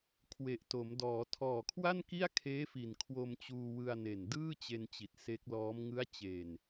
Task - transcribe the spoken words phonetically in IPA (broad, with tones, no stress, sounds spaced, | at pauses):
kʰ w e˨˩ ʔ t o˩˦ m d ɔː˩˦ tʰ ɔː˨˩ kʰ w a˥˩ n k i˥˩ a̯ kʰ eː˦˥ f i˨˩ n kʰ w o˧ m t͡ɕ uː˧ w ɯ˧ a̯ n e˨˩ n d ɯː˥˩ t͡ɕ e˧ n t͡ɕ i˨˩ t̚ s e˦˥ k̚ l ɔː˦˥ m ŋ ɯ˦˥ a̯ t͡ɕ e˨˩ n